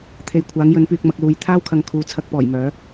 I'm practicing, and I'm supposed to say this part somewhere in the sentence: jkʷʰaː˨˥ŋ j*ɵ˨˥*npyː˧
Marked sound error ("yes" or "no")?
no